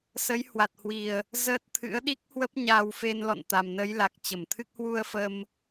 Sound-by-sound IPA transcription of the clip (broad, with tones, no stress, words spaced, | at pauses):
sə˨˦j hwa˨˩t̚hwi˨˩ə̯ | zəː˦˥t̚t̪ʰɨ̰˧˥ə̯ ɗi˦˥k̚ hwə˦˥p̚ɲaː˧w fe˧nlɔ̰˧˨n t̪a˨˩mnə˨˦jla˨˩k̚ t͡ɕə˧˩mt̪ʰɨ˦˥k̚ hwu˧ə̯ fə˧m